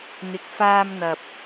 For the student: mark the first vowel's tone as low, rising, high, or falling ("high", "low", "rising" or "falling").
rising